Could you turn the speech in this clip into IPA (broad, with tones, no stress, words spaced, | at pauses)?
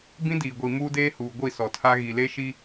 bĩ˦diː˨ɡʷi˨ muː˦deː˦huː˨ ɡʷi˦˨ sɔ˨tʰa˦ ɣi˨le˦ʃi˦